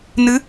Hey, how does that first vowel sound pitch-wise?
rising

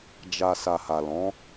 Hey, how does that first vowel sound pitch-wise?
low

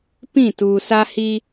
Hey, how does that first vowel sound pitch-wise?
falling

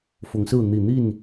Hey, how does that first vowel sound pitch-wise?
rising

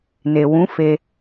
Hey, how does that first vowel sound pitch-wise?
low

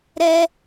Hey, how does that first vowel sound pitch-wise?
high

